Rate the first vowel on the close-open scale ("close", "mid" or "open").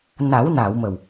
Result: open